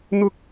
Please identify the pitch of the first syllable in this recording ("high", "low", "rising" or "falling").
high